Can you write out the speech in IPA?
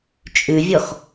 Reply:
t͡ʃʼ ʉ vʲ ɔ x

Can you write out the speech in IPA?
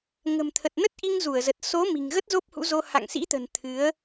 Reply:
ŋ ə̤˨˩ m t̪ʰ ə˨˩ t̚ n ə˦˥ t̚ ʔ i˧ ŋ z u˧˩ ə̯ z ə˨˩ t̚ s o˨˦ m i̤˨˩ ŋ ɣ ə˦˥ t̚ z o˦˥ p̚ h ṵ˧˥ z o˧ h a̰˧˨ ŋ s ḭ˧˥ t̪ ə̤˨˩ n t̪ʰ ɨ˨˦ ə̯

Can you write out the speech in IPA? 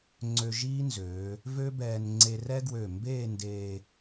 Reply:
ŋ͡ǀ ø˧ ʒ iː˥ n z øː˩˧ | v ø˥ b ɛː˧ n ŋ͡ǀ e˧ r ɛ˥ ɡ w ø˧˩ m b eː˥˧ n d eː˧

